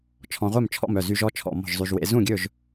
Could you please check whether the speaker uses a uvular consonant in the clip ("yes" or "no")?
yes